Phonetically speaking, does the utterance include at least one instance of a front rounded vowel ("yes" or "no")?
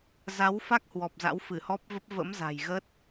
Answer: no